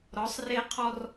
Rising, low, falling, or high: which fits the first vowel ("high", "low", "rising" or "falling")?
rising